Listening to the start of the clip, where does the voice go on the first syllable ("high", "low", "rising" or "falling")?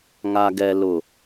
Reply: low